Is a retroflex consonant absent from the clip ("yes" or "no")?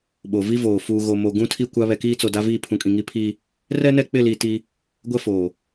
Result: yes